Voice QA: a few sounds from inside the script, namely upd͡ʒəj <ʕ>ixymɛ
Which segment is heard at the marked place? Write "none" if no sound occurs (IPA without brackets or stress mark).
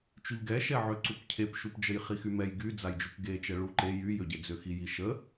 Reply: χ